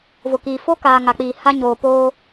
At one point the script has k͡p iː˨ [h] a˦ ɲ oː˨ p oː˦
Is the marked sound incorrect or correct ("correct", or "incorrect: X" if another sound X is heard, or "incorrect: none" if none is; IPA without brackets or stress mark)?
correct